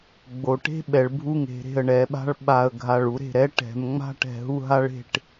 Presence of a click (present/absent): absent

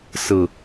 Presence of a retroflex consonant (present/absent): absent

